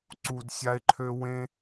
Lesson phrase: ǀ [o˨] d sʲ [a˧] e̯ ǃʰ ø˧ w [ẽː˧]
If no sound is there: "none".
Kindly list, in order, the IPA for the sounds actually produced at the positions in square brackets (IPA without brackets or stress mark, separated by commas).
u˨, a˧, ẽ˧